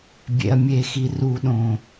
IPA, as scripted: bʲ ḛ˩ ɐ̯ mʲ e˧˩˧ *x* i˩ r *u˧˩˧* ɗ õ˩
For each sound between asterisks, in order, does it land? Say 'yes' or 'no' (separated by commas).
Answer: yes, yes